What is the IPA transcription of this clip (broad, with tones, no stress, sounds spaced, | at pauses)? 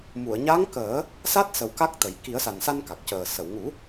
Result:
m u˨˩˨ ə̯ ɲ a˧˥ ŋ k əː˨˩˦ | s a˦˥ t̚ s ə˨˩ w k a˦˥ k̚ t̪ ə˨˩ j k i˨˩˦ ə̯ s a˨˩ n s a˧ n k a˨˩ k̚ c əː˨˩ s ə˨˩˨ w ŋ u˨˩˦